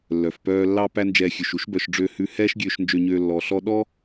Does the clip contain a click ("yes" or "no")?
no